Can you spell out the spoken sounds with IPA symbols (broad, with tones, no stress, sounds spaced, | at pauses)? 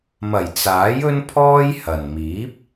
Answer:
m ɐ˨˩ j t͡s aː˨˥ j ɵ˥ n pʰ ɔː˥ j h ɐ˨ n m iː˨˥ p̚